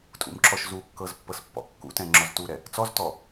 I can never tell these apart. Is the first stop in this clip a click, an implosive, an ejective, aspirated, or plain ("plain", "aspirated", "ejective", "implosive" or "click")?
ejective